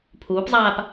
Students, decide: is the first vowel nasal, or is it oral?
oral